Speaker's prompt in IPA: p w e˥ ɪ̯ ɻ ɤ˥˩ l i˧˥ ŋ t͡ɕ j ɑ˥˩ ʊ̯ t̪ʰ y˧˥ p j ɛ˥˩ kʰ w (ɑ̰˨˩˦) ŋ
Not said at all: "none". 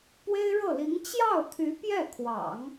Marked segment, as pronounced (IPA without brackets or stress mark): ɑ̰˨˩˦